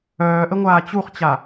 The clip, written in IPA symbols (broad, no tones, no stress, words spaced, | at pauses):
œːʔəŋʷaː t͡ɕuχt͡ɕa